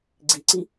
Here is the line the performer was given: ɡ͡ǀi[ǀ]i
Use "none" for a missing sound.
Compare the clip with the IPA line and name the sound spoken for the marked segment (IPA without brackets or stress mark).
ǀ